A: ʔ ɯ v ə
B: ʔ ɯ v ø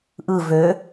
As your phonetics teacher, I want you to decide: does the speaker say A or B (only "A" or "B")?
B